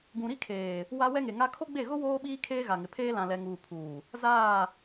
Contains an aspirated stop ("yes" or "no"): yes